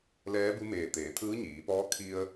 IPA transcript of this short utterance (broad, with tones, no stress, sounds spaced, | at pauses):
l ɛː˧˥ b u˧˥ m eː˧˩ t̪ eː˩˧ t̪ʰ ɯː˧˥ ɲ iː˩˧ p ɔː˧˥ kʰ i˧ ə̯